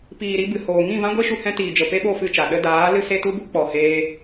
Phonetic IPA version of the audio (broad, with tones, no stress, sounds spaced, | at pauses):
p iː˨ ɾ i˧ b ɨ˨ h oː˨ ŋ ĩ˦˨ v ã˦ ɡʷ e˦ ʃ u˧ h ɛ̃˧ t iː˨ d͡ʒ ə˨ p e˦ ɓ o˦˨ f ɨ˦˨ t͡ʃ a˨ ɗ ə˧ d aː˨˦ l ɨ˦ s e˦ t u˦ b u˦ k͡p ɔ˨ h eː˧